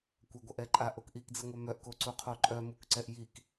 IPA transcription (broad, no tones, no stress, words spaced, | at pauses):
kʷɐɡʷɐʔɛǃʼa ʔokʔikd͡ziŋʷœ mœʔko ǀuqʰoǃʼœ mukǀɛʔjik